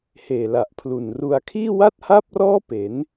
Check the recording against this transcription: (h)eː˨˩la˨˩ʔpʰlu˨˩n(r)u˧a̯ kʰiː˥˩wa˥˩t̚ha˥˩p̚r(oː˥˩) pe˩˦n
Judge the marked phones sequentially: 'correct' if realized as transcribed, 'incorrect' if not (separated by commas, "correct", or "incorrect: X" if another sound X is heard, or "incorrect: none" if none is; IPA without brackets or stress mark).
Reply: correct, correct, incorrect: ɔː˥˩